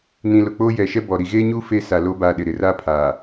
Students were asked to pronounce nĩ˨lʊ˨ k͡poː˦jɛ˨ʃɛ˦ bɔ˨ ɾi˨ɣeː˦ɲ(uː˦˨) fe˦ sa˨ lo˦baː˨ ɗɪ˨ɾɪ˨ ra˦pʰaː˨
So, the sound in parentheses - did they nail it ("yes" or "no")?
no